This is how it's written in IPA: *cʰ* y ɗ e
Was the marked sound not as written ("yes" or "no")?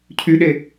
no